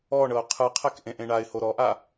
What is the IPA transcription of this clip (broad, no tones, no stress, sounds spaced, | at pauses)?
ɔ ɳ ɤ ʊ̯ qʰ ɯ qʰ ɛ k ʔ ẽ ʔ ẽ ɳ a ɪ̯ h o ɾ ɔ ʔ a